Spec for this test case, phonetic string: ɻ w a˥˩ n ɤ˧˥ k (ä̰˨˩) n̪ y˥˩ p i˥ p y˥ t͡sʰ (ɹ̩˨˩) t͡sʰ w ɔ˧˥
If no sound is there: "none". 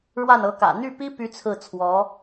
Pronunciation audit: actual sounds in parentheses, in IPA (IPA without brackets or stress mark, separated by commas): ä̰˨˩, ɹ̩˥˩